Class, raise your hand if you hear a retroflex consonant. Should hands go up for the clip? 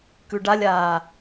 yes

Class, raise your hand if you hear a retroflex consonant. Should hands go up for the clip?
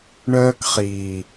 yes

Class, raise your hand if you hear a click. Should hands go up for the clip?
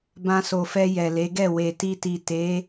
no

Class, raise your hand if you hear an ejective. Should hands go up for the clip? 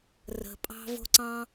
yes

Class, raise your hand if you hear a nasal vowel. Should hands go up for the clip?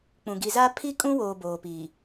yes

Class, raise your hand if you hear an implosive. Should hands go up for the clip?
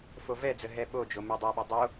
yes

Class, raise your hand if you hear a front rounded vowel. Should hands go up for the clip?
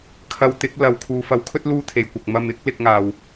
no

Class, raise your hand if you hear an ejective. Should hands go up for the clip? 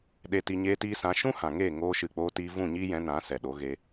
no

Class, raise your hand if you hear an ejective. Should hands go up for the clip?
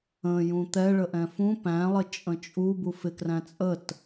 yes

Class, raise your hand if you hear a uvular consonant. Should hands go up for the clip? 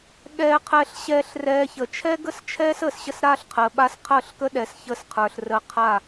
yes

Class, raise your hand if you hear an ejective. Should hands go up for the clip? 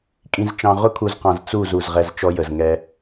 yes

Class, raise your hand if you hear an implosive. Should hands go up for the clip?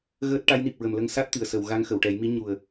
no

